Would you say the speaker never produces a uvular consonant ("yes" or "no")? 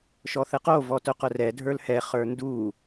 no